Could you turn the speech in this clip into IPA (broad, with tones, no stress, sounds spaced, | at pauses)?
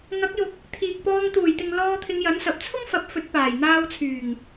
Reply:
ŋ ɐ˨˥ k̚ j ʊ˨ k̚ | t̪ʰ iː˨ k̚ p ɔː˧ ŋ t̪ uː˨˩ j t̪ ɪ˨ ŋ l ɔː˧ t̪ʰ ɪ˨˧ ŋ j ɐ˨˥ n s ɐ˨ p̚ t͡sʰ ʊ˥ ŋ f ɐ˨˥ p̚ f ɵ˨˥ t̚ p aː˨˩ j n̪ aː˧ w t͡sʰ yː˨˩ ŋ